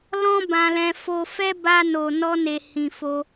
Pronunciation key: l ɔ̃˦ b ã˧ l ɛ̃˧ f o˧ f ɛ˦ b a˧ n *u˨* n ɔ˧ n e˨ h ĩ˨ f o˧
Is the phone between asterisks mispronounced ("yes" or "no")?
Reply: yes